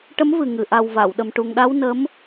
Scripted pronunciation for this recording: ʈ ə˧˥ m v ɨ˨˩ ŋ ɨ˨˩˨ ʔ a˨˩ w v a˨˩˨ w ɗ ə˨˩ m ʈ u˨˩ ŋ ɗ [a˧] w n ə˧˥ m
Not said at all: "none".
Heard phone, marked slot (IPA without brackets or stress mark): a˧